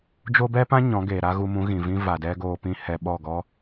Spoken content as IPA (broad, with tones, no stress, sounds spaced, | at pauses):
d͡ʒ o˦ b ɛ˦ p ã˦ ɲ ɔ̃˨˦ ɡ eː˨ ɾ a˦ ɣ u˧ m ũ˨˦ ɣ ĩ˨ v ĩ˦ v a˨ d ɛ˦ ɡ oː˧ p ĩ˦ h ɛ˧ ɓ ɔ˦˨ ɡ ɔ˦